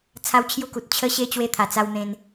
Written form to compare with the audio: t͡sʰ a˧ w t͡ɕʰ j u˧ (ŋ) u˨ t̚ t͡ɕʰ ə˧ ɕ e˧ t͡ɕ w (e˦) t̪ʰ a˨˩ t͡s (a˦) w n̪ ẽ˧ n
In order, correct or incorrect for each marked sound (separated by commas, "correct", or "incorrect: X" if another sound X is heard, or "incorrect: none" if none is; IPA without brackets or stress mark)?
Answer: incorrect: k, incorrect: e˧, incorrect: a˧